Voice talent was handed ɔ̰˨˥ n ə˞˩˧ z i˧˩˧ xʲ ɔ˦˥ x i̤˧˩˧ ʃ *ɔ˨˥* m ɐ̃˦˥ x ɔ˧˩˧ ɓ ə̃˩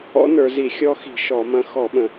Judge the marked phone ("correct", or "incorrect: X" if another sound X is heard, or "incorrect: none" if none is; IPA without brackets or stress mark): incorrect: ɔ˧˩˧